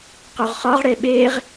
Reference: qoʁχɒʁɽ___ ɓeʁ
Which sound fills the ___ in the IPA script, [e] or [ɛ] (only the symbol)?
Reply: e